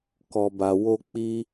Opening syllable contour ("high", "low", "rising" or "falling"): low